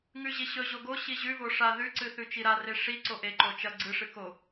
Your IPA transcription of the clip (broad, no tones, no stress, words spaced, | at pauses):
ŋʉʑiɕɵ ʑoɡo ɕiʑʉ voʂa ðʉǀɨ θʉt͡ʃiɾare ʂi ǀoʔe ǃot͡ʃɐ ɡ͡ǀɨ ʂɨko